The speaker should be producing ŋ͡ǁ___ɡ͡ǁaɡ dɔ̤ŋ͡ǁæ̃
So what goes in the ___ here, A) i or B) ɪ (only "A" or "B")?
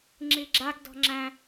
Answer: A